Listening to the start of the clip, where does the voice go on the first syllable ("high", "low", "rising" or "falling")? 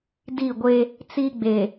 falling